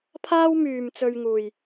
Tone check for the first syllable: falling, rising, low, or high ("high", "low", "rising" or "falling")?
high